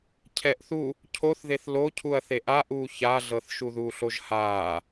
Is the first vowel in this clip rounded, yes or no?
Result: no